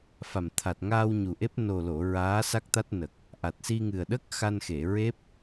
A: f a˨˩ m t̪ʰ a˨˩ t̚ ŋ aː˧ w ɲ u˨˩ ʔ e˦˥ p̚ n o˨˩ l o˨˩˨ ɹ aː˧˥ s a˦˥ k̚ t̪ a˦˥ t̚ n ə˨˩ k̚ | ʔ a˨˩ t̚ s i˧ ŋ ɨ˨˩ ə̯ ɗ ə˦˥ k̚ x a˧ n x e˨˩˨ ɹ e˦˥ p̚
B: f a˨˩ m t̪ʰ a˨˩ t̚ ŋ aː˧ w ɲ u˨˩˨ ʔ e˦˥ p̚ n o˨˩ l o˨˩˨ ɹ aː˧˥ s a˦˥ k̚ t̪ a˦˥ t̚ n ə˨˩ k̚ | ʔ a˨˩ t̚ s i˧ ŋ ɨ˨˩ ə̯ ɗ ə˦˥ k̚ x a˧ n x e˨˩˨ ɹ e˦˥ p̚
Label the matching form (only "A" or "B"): A